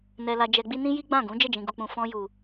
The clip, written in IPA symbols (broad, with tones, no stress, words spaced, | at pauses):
nɛ˧ la˧d͡ʒɛ˧ɡ͡bi˦ nĩ˦ji˦ɡ͡bã˦˨ɡũ˨˦ d͡ʒɛ˦˨d͡ʒĩ˨ɡu˨k͡pũ˨ fɔ̃˧ju˨